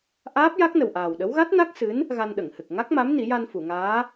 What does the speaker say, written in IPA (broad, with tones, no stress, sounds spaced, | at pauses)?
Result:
ʔ aː˦˥ p̚ j a˦˥ k̚ n ə˨˩ w ʔ aː˨˩ w ɗ ə˧˥ w ɣ a˦˥ t̚ n a˦˥ k̚ s ɨ˧˥ n | ɣ a˧ n ɗ ə˨˩˨ ŋ h ɨ˨˩ k̚ ŋ a˦˥ k̚ m a˧˥ m n i˨˩˦ j a˧ n f u˨˩˨ ŋ aː˧˥